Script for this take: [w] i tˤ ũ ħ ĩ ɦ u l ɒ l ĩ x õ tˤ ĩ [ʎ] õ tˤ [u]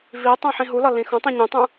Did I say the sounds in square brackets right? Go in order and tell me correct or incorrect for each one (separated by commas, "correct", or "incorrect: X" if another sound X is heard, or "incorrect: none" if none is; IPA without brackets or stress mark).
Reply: incorrect: v, incorrect: ɲ, incorrect: ũ